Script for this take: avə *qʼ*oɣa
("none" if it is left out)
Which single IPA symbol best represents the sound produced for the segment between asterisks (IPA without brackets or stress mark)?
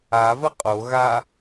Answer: qʼ